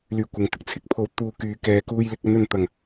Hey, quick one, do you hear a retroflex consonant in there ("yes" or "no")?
no